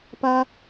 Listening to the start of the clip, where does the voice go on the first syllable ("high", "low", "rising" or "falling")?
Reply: high